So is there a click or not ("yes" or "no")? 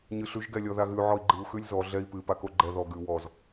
yes